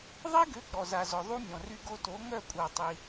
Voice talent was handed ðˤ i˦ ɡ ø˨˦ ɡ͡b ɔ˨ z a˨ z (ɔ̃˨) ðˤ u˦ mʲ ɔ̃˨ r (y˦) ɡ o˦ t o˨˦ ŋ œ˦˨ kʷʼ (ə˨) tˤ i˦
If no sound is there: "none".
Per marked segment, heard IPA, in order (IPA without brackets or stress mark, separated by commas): ɔ˨, y˦, a˨